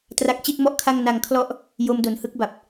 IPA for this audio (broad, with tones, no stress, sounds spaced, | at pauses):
t r a˦˥ k̚ t͡ɕ i˥˩ t̚ m ɔ˥˩ ʔ kʰ a˥˩ ŋ n a˧ ŋ kʰ l ɔ˦˥ ʔ | j o˦˥ m d o˨˩ n h ɯ˥˩ k̚ b a˨˩ p̚